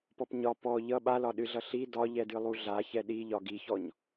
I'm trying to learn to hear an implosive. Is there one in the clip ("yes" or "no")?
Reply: yes